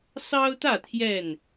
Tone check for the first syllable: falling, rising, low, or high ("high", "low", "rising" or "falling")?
high